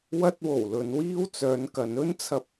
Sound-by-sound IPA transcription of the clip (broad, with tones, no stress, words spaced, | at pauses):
wɐ˧t̚wo˨˩w lɵ˨˧nwiː˥w t͡sœː˨˧nkɐ˨˧nɵ˥nt͡sʰɐ˧p̚